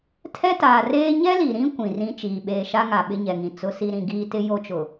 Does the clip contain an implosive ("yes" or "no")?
yes